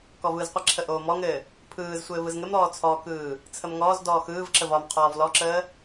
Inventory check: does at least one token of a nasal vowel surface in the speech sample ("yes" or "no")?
no